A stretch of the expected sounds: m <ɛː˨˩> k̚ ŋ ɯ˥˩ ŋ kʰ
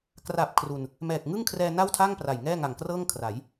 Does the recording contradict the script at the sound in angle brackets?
no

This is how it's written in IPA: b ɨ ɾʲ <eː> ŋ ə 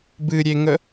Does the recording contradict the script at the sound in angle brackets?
yes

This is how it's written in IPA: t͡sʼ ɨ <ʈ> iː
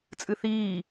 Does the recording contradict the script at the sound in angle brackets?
yes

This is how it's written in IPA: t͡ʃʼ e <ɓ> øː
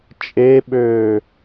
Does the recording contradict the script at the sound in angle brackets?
no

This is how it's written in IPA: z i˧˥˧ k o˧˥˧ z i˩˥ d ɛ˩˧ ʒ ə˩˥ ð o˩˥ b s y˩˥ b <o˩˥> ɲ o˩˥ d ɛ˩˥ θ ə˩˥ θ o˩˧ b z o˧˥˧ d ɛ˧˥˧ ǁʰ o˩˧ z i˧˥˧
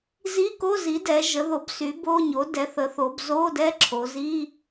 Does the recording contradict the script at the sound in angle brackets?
yes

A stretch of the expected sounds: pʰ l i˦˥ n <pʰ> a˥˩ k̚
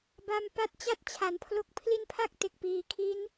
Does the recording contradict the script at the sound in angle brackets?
no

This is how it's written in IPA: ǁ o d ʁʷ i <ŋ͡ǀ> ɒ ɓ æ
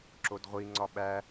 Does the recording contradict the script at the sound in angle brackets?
no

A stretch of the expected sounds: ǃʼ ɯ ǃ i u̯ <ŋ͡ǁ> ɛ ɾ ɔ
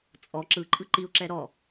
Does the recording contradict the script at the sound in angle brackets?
yes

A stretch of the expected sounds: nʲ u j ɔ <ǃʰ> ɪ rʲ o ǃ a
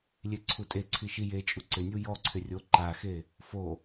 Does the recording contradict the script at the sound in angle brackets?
yes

